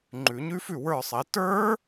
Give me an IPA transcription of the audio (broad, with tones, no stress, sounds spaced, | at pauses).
ŋ͡ǃ ʉ˨˩˦ ɲ ʉ˦˥ f ʉ˥˨ w ə˞˥˨ sˤ e˨˦ t ə˞˦˥